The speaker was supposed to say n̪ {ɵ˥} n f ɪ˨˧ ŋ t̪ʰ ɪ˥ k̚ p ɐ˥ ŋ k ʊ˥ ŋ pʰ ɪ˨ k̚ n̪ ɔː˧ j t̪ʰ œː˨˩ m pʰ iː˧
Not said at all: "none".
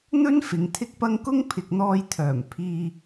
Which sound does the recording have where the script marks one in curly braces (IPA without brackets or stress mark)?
ɵ˥